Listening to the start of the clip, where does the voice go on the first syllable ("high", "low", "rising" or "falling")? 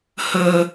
low